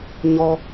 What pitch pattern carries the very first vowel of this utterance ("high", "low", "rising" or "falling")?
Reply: high